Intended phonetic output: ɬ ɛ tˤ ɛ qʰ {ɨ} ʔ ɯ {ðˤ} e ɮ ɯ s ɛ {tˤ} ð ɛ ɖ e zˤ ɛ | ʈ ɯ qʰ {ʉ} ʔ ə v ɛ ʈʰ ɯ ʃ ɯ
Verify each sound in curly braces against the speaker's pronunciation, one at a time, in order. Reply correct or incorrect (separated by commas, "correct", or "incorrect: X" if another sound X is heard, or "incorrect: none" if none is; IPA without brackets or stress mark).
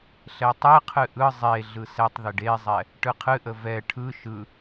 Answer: correct, incorrect: zˤ, correct, incorrect: ɨ